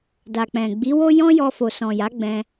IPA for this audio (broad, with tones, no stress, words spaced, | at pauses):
da˨k͡pɛ̃˨ ɡ͡bi˨˦wo˦jɔ̃˦jɔ˧ fo˨sɔ̃˨ja˨˦ɡ͡bɛ̃˧